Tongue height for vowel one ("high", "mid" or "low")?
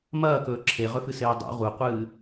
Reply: low